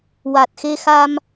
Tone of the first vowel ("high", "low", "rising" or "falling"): low